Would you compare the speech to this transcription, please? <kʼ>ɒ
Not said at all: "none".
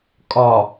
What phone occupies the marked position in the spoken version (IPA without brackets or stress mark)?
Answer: kʼ